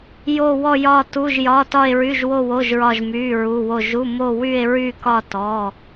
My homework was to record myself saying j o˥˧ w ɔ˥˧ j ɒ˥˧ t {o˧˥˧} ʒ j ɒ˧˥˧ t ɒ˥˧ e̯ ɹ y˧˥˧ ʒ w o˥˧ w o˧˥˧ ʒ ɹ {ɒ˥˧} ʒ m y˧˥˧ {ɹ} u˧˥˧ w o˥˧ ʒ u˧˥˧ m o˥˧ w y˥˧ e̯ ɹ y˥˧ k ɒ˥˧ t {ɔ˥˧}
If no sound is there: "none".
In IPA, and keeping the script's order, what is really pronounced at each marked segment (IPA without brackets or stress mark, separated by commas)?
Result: u˧˥˧, ɒ˥˧, ɹ, ɔ˧˥˧